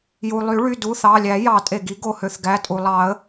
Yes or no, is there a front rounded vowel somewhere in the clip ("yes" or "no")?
yes